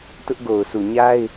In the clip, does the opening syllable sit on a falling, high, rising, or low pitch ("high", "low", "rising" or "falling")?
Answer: high